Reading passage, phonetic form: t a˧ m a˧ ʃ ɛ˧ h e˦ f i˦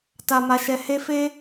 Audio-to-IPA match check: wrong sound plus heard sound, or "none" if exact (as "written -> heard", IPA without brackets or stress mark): i˦ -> e˦